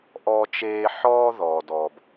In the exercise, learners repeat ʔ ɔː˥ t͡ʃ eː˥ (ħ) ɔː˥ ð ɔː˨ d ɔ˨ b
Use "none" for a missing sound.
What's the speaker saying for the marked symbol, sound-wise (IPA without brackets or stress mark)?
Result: ħ